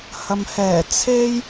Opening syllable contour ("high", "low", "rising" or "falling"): low